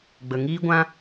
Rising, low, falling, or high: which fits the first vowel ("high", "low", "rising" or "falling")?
low